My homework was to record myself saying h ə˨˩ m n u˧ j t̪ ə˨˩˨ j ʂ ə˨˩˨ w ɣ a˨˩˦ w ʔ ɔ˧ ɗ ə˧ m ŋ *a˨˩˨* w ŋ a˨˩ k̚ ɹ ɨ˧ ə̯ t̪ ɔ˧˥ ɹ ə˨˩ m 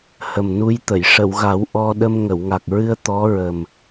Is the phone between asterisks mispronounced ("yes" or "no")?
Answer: yes